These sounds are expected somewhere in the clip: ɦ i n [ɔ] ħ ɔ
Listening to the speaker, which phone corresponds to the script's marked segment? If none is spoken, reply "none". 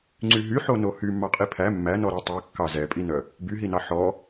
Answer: ɑ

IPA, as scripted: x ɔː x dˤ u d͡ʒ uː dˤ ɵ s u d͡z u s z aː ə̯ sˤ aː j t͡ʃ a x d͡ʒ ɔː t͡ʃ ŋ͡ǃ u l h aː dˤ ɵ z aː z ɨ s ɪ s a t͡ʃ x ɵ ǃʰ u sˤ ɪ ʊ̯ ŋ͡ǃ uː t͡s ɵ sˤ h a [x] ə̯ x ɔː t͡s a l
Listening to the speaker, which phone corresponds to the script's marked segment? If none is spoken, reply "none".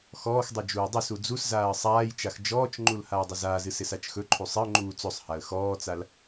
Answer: none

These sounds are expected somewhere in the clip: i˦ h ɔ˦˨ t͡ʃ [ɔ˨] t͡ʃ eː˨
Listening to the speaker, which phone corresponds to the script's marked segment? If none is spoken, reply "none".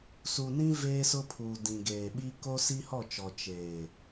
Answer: ɔ˨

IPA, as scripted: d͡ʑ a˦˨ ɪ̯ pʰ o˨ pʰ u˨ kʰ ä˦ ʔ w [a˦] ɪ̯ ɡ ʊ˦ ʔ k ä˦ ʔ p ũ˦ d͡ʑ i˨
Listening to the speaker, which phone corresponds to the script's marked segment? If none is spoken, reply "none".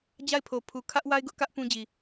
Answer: a˦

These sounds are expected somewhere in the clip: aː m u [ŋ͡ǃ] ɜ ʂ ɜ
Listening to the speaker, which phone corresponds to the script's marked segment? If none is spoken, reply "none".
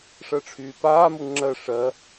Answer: ŋ͡ǁ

